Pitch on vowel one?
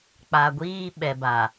low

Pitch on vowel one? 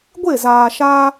falling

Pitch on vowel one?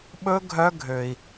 high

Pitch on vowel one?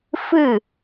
falling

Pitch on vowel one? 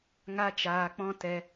high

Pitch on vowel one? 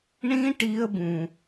high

